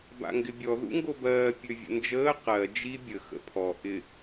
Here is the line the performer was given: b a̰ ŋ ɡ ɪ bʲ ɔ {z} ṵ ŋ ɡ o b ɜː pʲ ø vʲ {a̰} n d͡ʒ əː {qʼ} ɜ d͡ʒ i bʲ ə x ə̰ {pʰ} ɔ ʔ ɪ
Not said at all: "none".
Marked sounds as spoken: ð, ə̰, q, pʰ

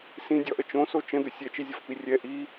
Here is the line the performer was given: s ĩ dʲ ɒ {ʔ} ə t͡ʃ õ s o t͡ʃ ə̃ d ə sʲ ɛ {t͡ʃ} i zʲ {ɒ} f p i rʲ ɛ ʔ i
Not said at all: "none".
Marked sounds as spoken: ʔ, t͡ʃ, ɒ

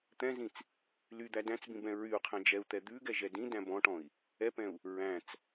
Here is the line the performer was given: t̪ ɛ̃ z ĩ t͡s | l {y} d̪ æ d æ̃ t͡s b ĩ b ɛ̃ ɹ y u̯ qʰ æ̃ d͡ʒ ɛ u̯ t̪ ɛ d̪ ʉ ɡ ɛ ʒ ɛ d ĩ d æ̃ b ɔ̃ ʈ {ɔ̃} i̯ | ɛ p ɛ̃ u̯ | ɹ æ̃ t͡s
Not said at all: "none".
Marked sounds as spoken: y, ɔ̃

